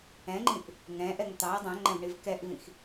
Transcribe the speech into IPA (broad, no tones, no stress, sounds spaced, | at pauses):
ɛ̃ ŋ͡ǃ ĩ ʔ | ŋ ɛ̃ ʔ ɛ ŋ t̪ ɑ ɐ̯ dˤ ɛ̃ ŋ͡ǃ ɛ̃ v ɳ i v k ɛ ʔ v ĩ x